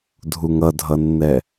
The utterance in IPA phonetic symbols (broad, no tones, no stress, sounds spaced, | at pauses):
dʱ u ŋ ʌ dʱ ʌ nː ɛ